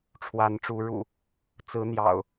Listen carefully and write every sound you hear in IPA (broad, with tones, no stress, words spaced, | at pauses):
ʈ͡ʂʰwa˨˦nʈ͡ʂu˨˦ ɻṵ˨˩ | t͡sɹ̩˨˦ n̪jɑ̰˨˩ʊ̯